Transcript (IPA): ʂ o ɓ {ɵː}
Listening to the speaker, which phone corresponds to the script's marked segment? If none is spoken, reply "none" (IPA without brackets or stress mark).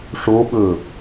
ɵː